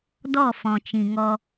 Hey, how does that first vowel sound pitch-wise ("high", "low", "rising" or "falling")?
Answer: falling